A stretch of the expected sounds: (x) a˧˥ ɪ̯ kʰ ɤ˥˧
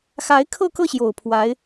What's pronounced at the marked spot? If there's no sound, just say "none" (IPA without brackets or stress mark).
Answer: x